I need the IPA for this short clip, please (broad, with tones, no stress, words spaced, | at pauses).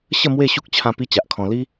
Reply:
ɕə˥˧ mwe˥˧ɕu˦k̚ t͡ɕʰã˧ pi˦t͡ɕa˨ʔkʰɔ̃˧ li˦